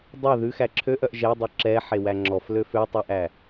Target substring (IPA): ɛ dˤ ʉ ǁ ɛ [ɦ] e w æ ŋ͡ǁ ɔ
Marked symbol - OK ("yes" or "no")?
no